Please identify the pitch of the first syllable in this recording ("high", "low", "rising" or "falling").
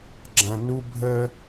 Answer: low